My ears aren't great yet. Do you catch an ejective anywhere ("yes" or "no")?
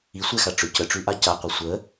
no